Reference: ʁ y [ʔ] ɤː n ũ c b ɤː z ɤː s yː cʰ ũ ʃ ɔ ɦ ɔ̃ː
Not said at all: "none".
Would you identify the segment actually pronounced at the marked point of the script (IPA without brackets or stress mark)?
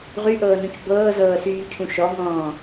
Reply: ʔ